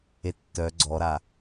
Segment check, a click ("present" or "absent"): present